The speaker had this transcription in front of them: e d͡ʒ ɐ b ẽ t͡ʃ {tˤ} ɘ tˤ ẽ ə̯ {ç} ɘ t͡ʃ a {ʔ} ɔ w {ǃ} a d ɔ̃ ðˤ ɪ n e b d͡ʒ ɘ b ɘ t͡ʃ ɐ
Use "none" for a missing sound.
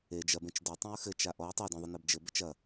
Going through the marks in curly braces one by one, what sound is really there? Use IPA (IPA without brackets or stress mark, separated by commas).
d, x, ʔ, tˤ